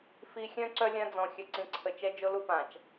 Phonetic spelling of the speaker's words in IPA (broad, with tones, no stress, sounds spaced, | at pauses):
f i˨ xʲ œ̃˦ ǀ œ˦ lʲ ã˦ d͡z ɔ̃˨ xʲ œ˨ ǀ ĩ˨ ǀʰ ə˨ t͡ʃ ɛ˦ d͡ʒ o˦ l u˦ p ã˨ t͡ʃ